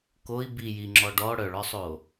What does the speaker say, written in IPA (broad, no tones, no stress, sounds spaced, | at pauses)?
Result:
k o i̯ b i j i ŋ͡ǁ ɔ ɖ ɔ ɽ œ ɭ ɔ sˤ o